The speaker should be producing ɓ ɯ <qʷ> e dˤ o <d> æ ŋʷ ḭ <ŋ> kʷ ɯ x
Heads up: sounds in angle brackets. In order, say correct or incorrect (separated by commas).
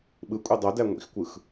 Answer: incorrect, correct, incorrect